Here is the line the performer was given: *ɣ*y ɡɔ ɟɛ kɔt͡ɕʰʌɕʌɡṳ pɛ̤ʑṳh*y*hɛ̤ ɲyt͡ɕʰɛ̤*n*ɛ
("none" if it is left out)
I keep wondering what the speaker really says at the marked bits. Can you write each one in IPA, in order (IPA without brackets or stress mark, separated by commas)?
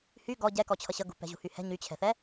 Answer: h, y, θ